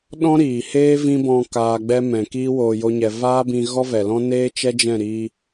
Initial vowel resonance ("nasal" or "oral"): nasal